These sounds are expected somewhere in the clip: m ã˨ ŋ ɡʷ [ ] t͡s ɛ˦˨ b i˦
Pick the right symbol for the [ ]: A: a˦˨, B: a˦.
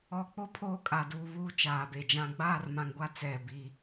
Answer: A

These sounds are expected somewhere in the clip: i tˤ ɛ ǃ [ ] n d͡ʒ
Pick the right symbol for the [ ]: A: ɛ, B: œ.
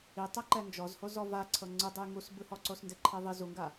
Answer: A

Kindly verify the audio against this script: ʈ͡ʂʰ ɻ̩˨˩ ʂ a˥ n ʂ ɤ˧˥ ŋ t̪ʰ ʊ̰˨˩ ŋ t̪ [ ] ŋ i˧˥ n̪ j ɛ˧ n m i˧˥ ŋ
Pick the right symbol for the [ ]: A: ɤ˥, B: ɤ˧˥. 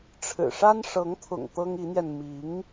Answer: A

